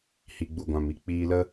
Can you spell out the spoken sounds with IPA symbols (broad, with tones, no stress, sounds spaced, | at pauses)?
h i˨ ɡ͡b u˨ ɡʷ ã˨ m i˧ k͡p iː˧ l ə˦